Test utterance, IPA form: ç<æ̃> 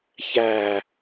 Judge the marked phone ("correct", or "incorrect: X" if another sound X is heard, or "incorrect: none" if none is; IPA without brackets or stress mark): incorrect: æ